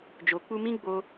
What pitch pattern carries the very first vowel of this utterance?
low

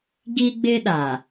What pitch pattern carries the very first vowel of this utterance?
high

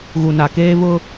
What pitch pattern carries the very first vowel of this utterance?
low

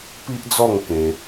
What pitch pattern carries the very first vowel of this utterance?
high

